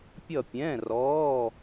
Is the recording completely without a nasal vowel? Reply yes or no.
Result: no